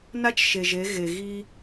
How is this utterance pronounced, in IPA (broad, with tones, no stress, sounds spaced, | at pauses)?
n a˦ t͡ʃ ʃ e˨ ʒ e˨˦ ɣ e˨ ɣ i˦